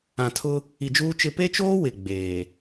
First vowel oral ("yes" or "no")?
no